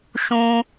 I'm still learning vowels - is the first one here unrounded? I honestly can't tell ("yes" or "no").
no